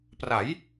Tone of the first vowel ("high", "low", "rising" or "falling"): rising